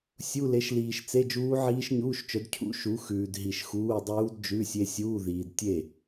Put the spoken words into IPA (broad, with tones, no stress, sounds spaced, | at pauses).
sʲ u˧˥˧ l e˨˥ ʃ l iː˨ ʃ t͡s e˧˥˧ d͡ʒ uː˦˥ ʕ iː˦˥ ʃ ɲ uː˧˥˧ ʃ t͡ʃ œ˨˥ d cʰ ṵ˦˥ ʃ u˨˥ x ʉː˨ d ɦ i˨ ʃ x uː˧˥˧ dˤ uː˦˥ d d͡ʒ ʉ˧˥˧ sʲ e˦˥ sʲ uː˧˥˧ ð iː˨ d tʲ e˥˩